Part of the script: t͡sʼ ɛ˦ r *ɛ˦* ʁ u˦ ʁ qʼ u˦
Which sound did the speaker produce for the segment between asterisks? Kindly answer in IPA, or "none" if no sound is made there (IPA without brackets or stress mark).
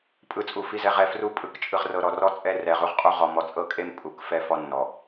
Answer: ɛ˨